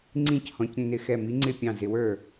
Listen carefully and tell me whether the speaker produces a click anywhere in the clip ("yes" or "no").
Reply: yes